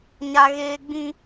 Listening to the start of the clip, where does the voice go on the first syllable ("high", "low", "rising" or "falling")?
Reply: high